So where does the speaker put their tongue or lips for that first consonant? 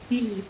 palate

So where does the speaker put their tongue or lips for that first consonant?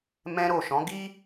lips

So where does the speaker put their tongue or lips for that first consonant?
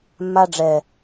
lips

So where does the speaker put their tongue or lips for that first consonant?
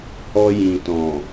throat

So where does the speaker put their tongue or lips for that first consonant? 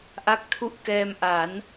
throat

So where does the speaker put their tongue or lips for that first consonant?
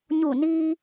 palate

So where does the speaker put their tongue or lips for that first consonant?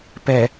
lips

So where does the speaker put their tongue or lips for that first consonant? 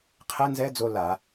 uvula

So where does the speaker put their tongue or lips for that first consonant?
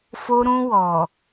lips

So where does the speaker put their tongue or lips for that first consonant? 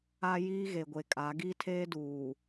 palate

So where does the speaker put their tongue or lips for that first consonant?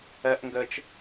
throat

